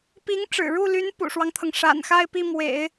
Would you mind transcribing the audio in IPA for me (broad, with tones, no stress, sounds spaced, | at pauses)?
p i˧˥ ŋ ʈ͡ʂ ɻ̩˨˩ ɻ u˥˩ l y˧˥ n p ṵ˨˩ ʂ w ɑ˦ ŋ t̪ʰ ɤ˩ ŋ ʂ a̰˨˩ n x a˥˧ ɪ̯ p i˥˩ m w ḛ˨˩˦ ɪ̯